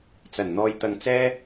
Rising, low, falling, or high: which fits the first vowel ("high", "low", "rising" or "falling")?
low